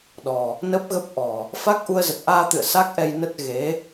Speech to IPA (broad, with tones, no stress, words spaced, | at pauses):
ɗɔ˨˩ | nə˦˥p̚ɣə˦˥p̚ʔɔ˨˩ | fa˦˥k̚ʔu˧ə̯zə˨˩t̚ ʔaː˧t̪ɨ̰˧˨ə̯ sa˦˥k̚ʔɛ˧jnə˦˥t̚ ɣe˨˦